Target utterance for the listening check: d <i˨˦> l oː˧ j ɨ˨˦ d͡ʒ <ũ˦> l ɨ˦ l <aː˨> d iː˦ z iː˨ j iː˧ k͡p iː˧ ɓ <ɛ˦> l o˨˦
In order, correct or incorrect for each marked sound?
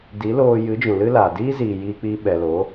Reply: correct, incorrect: ũ˨, correct, incorrect: ɛ˨

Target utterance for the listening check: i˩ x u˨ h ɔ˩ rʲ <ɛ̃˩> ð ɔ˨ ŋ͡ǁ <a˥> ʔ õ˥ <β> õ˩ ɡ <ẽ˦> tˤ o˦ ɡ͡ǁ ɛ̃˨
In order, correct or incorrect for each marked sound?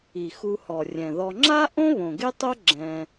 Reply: correct, correct, correct, incorrect: e˦

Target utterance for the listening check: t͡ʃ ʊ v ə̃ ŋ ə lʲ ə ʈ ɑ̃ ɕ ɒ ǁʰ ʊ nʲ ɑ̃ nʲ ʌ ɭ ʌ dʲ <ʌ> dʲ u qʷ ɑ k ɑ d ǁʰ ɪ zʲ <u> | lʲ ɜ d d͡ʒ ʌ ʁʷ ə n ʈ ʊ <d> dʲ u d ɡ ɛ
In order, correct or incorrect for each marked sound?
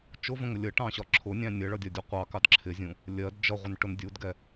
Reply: incorrect: ɒ, incorrect: ũ, incorrect: n

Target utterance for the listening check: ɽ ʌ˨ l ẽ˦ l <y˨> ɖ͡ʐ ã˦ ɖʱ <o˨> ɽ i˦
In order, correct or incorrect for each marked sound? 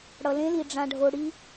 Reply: incorrect: i˨, incorrect: o˦

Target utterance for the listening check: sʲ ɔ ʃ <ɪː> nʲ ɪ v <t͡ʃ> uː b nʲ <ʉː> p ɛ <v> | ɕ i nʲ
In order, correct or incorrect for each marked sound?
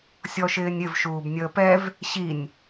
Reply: correct, incorrect: ʃ, incorrect: əː, correct

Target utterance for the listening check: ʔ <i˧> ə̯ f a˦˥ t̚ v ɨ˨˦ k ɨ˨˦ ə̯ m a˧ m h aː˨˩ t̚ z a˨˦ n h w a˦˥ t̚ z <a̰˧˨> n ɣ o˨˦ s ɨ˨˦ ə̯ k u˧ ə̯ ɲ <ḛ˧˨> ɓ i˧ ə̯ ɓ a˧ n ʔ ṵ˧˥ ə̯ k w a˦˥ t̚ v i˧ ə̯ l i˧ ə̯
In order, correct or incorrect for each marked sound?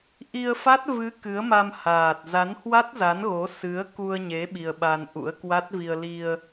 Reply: correct, incorrect: a˨˦, incorrect: e˨˦

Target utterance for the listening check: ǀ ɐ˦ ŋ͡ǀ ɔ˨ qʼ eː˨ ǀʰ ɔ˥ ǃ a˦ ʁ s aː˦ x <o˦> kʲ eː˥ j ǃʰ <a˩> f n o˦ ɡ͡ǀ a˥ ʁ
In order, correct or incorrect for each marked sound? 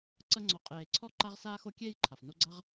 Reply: correct, correct

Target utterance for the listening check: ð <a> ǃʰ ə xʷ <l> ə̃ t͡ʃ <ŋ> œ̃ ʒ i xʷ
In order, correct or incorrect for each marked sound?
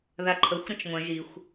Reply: correct, incorrect: ɾ, incorrect: ŋʷ

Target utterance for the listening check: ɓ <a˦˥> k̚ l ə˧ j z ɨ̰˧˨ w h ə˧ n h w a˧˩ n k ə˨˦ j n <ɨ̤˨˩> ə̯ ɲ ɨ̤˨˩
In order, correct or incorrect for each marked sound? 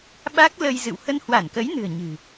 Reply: correct, correct

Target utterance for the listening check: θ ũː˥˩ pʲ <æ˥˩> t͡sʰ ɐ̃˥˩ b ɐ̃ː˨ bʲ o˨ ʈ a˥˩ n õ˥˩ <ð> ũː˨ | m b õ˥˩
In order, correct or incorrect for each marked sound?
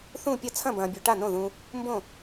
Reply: incorrect: ɐ˥˩, correct

